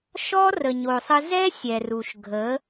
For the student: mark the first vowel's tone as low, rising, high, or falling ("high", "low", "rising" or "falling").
high